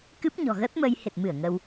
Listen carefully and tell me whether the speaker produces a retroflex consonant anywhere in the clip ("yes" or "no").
no